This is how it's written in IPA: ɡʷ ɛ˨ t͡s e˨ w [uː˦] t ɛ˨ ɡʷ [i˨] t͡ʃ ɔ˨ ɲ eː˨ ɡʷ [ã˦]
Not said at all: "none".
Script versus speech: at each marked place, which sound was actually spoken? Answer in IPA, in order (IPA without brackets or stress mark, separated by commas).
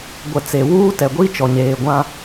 uː˦, i˦, ã˦